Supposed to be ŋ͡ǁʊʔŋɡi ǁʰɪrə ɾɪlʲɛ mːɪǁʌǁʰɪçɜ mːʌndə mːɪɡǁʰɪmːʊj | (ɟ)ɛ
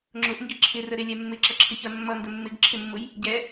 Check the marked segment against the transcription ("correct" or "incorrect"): correct